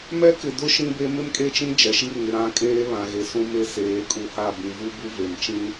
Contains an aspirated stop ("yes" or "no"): no